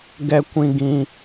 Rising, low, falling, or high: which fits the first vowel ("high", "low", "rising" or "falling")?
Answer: high